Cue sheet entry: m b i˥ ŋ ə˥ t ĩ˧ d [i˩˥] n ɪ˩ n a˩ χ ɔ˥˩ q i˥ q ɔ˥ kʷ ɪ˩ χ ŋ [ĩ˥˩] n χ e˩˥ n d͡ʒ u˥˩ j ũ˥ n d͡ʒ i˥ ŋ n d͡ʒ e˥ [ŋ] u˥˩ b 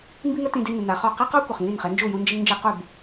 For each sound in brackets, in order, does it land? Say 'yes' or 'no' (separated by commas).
no, yes, no